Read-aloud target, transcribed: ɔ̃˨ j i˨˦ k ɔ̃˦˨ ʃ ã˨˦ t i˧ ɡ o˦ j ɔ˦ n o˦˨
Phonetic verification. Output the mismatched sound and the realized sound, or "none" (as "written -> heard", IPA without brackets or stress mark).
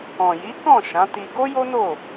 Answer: ɔ˦ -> o˦